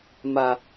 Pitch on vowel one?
high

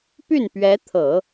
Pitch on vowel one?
falling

